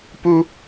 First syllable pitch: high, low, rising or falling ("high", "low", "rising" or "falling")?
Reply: high